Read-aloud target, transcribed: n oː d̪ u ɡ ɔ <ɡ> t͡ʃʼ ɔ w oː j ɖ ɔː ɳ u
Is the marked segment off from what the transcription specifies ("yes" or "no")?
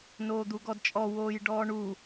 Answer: yes